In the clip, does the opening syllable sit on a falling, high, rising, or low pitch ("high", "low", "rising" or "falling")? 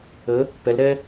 rising